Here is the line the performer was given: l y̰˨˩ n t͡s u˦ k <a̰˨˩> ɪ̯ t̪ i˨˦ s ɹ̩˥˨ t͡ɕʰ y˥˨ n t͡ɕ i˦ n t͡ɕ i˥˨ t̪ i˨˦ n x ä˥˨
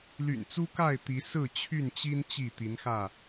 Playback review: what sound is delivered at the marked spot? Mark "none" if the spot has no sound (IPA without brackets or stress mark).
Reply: a˥˨